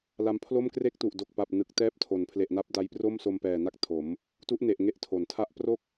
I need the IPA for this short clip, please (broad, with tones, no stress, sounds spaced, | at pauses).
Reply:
l a˧ m pʰ l o˥˩ m k r e˦˥ k̚ t u˨˩ ʔ d o˨˩ k̚ p a˨˩ p̚ n ɯ˨˩ k̚ t ɛː˦˥ p̚ tʰ o˩˦ n pʰ l e˨˩ ʔ n a˦˥ p̚ d a˧ j p r o˥˩ m s o˧ m p ɛː˨˩ n a˦˥ k̚ tʰ o˩˦ m | t u˦˥ ʔ n e˨˩ ʔ ŋ e˦˥ ʔ tʰ o˩˦ n tʰ a˥˩ ʔ p r o˥˩ k̚